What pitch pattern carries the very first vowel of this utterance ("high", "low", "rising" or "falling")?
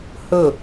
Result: falling